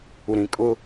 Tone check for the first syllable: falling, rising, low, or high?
low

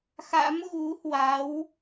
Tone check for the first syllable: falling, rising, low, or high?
rising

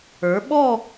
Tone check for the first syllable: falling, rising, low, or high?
rising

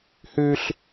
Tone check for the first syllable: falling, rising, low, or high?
high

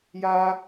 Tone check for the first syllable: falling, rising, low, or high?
high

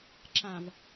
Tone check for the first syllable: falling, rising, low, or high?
low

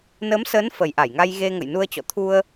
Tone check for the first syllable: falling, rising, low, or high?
rising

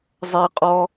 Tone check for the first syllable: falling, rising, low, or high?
high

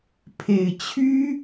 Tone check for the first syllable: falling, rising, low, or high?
low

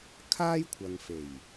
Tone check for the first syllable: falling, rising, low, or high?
high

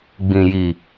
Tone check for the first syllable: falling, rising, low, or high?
low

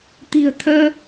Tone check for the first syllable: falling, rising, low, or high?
low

